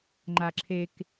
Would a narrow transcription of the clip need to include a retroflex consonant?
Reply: no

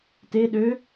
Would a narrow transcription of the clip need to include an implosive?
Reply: yes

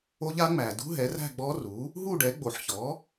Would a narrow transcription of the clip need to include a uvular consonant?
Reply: no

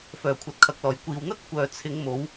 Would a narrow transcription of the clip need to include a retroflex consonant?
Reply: no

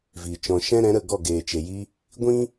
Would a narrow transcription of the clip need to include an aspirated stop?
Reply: no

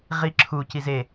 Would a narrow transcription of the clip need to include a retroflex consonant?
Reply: no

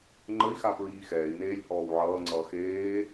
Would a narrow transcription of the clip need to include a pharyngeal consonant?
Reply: yes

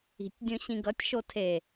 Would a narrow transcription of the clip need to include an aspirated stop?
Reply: yes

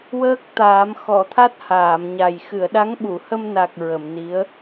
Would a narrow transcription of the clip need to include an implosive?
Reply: yes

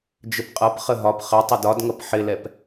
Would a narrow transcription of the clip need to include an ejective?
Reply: yes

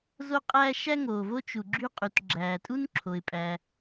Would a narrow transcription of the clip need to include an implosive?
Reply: no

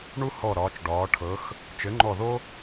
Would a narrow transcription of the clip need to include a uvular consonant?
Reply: no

